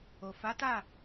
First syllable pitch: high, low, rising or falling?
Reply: low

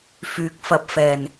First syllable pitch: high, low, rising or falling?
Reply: rising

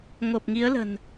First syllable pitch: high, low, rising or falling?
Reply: low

